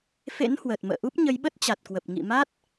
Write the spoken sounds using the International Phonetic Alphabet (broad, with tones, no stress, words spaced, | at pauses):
fḛ˧˥nhwəː˨˩t̚ mə̰ː˧˨ʔu˦˥p̚ ɲə˨˦jɓə˦˥t̚t͡ɕa˨˩t̚kwə˨˩p̚ ŋḭ˧˨ma˦˥t̚